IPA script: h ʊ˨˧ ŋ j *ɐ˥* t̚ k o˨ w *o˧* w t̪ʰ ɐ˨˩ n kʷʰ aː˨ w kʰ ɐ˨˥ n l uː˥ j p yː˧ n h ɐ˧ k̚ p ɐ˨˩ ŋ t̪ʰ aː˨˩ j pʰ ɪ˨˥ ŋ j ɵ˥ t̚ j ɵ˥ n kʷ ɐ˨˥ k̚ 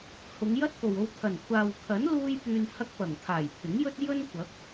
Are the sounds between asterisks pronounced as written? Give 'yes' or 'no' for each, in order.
yes, yes

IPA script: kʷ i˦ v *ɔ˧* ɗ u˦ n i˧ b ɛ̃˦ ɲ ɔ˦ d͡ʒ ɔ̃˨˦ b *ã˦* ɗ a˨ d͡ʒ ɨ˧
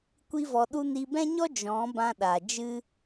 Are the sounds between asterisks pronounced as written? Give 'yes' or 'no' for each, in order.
yes, no

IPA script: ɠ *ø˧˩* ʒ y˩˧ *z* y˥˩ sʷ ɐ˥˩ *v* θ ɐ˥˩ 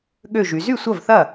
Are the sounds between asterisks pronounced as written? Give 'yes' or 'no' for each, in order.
yes, yes, yes

